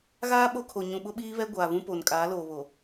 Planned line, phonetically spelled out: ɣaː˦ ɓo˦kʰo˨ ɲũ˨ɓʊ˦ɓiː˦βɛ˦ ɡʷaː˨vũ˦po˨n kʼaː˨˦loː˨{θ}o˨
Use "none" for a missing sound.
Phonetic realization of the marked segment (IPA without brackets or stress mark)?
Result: β